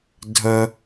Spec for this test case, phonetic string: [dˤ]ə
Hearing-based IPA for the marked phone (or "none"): dʱ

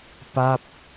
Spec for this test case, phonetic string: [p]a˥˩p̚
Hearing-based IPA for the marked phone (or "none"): p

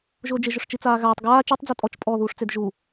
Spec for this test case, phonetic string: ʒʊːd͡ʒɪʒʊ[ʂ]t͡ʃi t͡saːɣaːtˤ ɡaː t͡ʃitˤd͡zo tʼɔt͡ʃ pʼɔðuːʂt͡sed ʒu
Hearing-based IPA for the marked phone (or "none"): ʂ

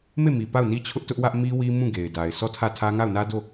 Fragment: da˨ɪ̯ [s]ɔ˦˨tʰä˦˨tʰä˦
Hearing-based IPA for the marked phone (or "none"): s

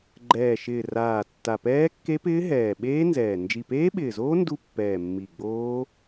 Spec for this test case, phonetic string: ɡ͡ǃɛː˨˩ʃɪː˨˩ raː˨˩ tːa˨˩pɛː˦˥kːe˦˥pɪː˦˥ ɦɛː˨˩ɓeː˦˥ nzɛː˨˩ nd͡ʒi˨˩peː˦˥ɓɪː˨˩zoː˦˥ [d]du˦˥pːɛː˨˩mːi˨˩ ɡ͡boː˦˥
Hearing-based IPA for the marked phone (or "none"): n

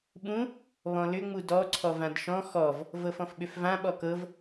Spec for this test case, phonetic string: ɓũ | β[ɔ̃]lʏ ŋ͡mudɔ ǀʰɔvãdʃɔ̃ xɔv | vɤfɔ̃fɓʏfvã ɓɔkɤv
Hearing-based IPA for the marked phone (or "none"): ɔ̃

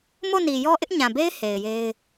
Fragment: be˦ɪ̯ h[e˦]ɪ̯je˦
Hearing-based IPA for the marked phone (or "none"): e˨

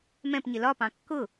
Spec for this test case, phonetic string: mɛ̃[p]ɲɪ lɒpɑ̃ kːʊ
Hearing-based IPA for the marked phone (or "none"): p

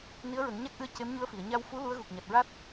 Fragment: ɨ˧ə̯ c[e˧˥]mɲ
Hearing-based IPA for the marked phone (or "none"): e˧˥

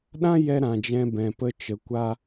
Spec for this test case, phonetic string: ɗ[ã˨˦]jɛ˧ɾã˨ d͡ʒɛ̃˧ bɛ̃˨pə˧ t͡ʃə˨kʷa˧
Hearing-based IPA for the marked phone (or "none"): ã˦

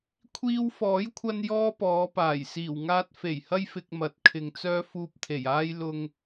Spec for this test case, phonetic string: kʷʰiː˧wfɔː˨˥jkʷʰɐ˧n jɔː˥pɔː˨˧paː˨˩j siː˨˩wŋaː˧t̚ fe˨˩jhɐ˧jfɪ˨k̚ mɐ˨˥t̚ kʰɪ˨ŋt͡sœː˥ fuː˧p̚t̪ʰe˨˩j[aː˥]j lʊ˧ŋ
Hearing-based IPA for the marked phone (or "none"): aː˥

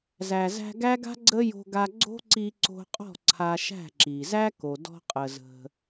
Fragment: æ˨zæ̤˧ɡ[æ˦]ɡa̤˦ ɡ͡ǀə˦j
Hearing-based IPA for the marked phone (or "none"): æ˦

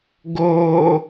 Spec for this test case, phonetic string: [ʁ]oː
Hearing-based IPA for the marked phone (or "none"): ɡ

